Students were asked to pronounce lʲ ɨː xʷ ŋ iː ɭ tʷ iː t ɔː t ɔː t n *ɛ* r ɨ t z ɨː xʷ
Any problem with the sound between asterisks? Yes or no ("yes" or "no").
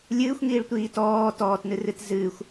yes